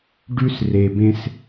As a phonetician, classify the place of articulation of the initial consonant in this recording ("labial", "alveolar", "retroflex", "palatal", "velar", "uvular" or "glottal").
retroflex